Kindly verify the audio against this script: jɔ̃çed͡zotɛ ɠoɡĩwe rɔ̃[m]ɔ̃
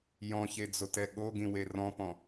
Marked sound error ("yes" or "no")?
yes